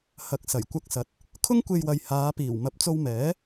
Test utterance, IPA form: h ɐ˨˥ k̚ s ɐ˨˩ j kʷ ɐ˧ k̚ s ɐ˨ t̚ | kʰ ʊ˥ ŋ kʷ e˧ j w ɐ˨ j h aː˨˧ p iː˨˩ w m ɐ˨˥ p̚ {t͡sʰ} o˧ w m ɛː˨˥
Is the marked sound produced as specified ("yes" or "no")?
no